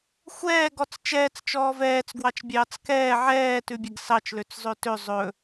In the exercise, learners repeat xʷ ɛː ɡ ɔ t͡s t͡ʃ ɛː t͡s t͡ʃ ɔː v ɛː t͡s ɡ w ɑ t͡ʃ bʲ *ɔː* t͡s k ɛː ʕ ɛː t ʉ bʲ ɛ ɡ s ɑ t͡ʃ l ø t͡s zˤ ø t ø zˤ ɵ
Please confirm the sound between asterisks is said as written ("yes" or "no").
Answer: no